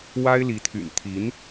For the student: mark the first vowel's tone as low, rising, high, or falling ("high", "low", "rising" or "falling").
high